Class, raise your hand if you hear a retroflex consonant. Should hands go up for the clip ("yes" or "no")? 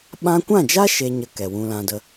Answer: no